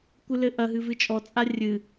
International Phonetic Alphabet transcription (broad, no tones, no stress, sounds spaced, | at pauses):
kʷ ɨ l ɘ ʔ ɐ ɦ ɨ v ɨ t͡ʃʼ ɔ t͡sʼ a rʲ ɨ